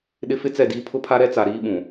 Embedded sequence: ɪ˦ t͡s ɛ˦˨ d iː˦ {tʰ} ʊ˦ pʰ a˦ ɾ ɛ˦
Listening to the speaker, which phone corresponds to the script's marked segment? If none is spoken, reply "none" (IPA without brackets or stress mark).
pʰ